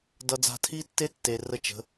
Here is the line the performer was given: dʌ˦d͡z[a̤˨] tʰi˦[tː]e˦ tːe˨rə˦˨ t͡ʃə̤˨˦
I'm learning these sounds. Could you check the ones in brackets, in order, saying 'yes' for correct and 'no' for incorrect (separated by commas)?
no, yes